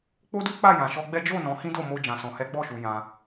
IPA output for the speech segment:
k͡p o˦ d u˦ k͡p a˦˨ j ã˨ ʃ ɔ˧ ɡ͡b ɛ˦ d͡ʒ o˦˨ n ɔ̃˨˦ h ĩ˦ d o˦˨ m o˧ d͡ʒ ã˨ s ɔ̃˨ h ɛ˨˦ ɡ͡b ɔ˦˨ ʃ u˧ j ã˧

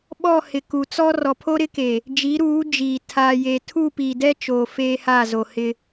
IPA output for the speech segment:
ɓ ɔ˦˨ h ɪ˨ k u˨ t͡s ɔ˦ r ɔ˨ pʰ o˦ ɾ ɪ˦ k e˨ | d͡ʒ i˨˦ ɾ uː˨˦ d͡ʒ iː˨ tʰ aː˨ j e˨ tʰ u˦˨ p i˨ d ɛ˦ t͡ʃ oː˨ f eː˦ h a˦˨ z o˨ h ɪ˦

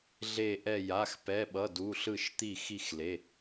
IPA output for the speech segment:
ɮ e˧˩ ʔ ɛ˧˩ j a˩˧˩ x p ɛ˩˧˩ ɓ ʌ˩˧˩ d u˩˧˩ ɬ ɯ˧˩ ʃ t̪ i˧˩ x i˧˩ x l e˩˧˩

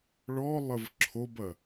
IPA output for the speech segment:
ɭ ɔ lˠ ə v ǁʰ o b ɐ

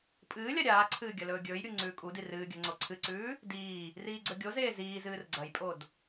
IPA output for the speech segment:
pʼ ɨː lʲ a ɾʲ aː ǀʰ ɨː ɡʲ ɐ l ɵː ɡʲ ɵː j ɾʲ u ŋ͡ǀ ʉː kʼ u d i r ɨː ɡʲ ɐ ŋ͡ǀ o ǀʰ ɨ ǀ ʉː | d iː | r iː ɡ͡ǀ ɵ ɡʲ o z eː z iː z ɨː r ɡ͡ǀ ɐ j pʼ o d

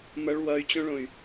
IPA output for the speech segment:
m ʌ ɭ w ʌ y̯ t͡ɕ õ ɭ õ y̯

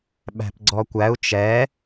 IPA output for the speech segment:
ɓ æ̤ p ɡ͡ǀ ɔ kʷ æ u̯ t͡ʃ ɛ

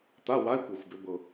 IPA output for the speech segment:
t̪ a˧˥˧ w a˧˥˧ i̯ kʷ ɤ˨˩ xʷ b ʏ˩˧ b ɤ˨˩

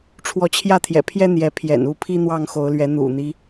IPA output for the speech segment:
ʈ͡ʂʰ w ɔ˨˦ t͡ɕʰ j ä˥˨ t̪ʰ j ɛ̰˨˩ pʰ j ɛ˦ n̪ j ɛ˨˦ pʰ j ɛ̰˨˩ n u˥˨ pʰ i˦ n̪ w ɑ˥˨ ŋ x o˨˦ ʊ̯ l ɥ ɛ˨˦ n̪ ṵ˨˩ n̪ i˦

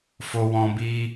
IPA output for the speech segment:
f o˦ w ɔ̃˦ b iː˦

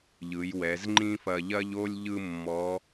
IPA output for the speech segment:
ʎ ɯ˩˧ j w ɛ˩˧ z ŋ͡ǃ ĩ˥ f ɐ˧ ʎ ɐ˥ ʎ o˥ lʲ ʎ ɯ˥ mː ɔ˧˥

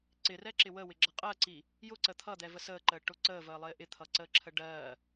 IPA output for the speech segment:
ǀ ɪ r ɛ ǁ ɪ w ə w ɪ ɡ͡ǁ ʌ qʼ ɜ ǀ i | j ʊ ǀ ə t̪ʰ ʌ d̪ ɛ v ə s əː ǃ əː ʈ ʊ ǀ əː v əː lˠ ɪː ʔ ɪ t̪ʰ ʌ ǀ əː ǁʰ ə ɖ ɜː

